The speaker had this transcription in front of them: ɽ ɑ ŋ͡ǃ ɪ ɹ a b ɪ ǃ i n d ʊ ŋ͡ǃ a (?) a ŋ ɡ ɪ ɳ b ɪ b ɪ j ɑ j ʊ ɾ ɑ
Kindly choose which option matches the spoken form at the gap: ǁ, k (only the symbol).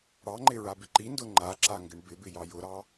ǁ